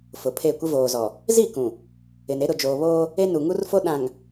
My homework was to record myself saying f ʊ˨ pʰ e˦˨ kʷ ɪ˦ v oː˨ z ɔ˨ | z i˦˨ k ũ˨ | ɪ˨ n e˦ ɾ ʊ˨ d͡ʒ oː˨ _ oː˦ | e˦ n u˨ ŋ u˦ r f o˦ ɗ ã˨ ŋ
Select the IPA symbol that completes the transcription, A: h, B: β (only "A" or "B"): B